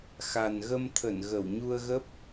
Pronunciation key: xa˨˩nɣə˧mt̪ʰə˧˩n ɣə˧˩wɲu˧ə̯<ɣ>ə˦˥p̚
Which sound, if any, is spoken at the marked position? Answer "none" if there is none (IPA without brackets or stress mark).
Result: ɣ